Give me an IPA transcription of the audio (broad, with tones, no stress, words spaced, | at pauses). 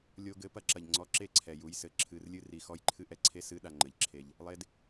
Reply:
lʲo˧ɡɘ˨˦ pɐ˧ǁɐ˨ʎ ŋ͡ǀɔ˧ǁe˦˨ǀʰɛ˨ ju˧jsɘ˧ ǁʰɨ˧rlʲɨ˦ ri˧xɔ˦jǃʰɨ˦ʔɛ˨˦ ǀʰe˦ sɨ˦ ɗa˧ŋ͡ǃɘ˨ʎǁʰe˧ʎ | lˠe˧d